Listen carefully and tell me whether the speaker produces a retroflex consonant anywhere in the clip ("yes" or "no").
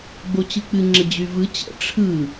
yes